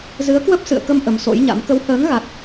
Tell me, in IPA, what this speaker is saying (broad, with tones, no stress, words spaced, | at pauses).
zɨ˨˦ə̯kwə˦˥p̚ sɨ̰˧˨ə̯kə˧m ʔə˨˦mso̰˧˥jɲa̰˧˥m kə˨˦whəː˨˦ŋ ɣa˦˥t̚